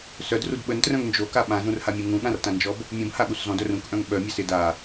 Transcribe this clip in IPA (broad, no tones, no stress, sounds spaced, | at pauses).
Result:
s œ d r u d ɓ ə n t r œ̃ ŋ n d͡ʒ o k a ɓ ã z ũ r h a mʲ ũ ŋ ũ ɠ ã r t ã n d͡ʒ ɔ b | mʲ ũ b h a ɠ u s z ɔ̃ d œ r ũ k ʔ œ̃ ŋ ɓ œ mʲ a s ɪ d a